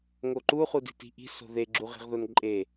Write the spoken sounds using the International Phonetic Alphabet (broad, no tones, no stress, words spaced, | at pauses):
ŋoǃu χudi̤ti̤ʔi̤ so̤ðe ɡ͡ǁuʁi̤ʁðonǃʼe